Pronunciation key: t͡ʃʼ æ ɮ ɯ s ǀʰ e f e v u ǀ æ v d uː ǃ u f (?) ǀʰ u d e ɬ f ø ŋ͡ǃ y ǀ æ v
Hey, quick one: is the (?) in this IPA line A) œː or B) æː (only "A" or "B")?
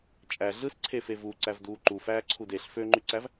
B